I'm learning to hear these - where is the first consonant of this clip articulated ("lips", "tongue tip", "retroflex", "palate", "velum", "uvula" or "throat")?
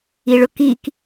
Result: retroflex